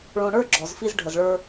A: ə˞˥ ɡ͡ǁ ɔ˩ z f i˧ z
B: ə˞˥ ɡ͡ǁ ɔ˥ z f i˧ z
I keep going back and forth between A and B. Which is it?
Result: A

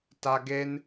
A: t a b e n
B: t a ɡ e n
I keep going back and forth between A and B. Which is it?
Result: B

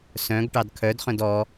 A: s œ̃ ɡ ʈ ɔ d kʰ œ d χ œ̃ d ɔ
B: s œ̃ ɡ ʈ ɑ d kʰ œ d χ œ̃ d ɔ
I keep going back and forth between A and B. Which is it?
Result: B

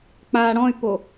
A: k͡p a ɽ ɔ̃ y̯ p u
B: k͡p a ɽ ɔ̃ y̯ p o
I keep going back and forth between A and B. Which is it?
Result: B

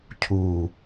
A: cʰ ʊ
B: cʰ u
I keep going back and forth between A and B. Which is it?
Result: B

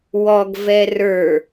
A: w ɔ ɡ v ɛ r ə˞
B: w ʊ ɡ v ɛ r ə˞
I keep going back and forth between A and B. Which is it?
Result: A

